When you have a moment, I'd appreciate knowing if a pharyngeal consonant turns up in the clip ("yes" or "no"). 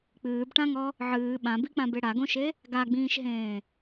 yes